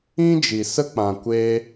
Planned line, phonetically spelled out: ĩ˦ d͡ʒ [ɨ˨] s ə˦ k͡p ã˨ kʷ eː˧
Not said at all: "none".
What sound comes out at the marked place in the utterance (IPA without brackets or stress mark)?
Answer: i˨